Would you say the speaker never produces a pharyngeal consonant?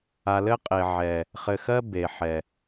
no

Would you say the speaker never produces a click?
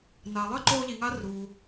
no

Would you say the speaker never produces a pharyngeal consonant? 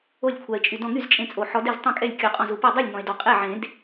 no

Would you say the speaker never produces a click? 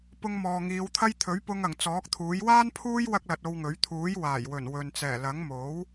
yes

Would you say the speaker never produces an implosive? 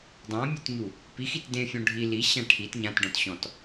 yes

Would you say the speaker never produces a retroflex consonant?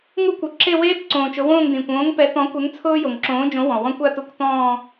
yes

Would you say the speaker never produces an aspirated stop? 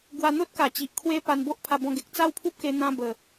no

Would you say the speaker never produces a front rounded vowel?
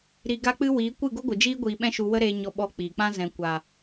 yes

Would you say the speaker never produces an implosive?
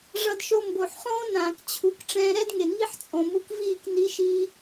yes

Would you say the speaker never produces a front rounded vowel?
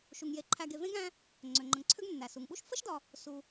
no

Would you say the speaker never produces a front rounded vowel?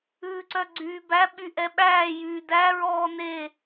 no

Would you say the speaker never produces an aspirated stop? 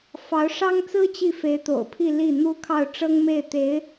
no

